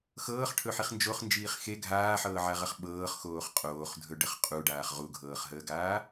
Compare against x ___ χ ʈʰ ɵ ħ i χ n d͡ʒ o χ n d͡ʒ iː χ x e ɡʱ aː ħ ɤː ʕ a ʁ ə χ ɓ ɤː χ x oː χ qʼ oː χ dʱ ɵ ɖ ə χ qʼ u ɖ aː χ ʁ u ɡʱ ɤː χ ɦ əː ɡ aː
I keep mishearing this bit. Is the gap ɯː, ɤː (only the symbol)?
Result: ɤː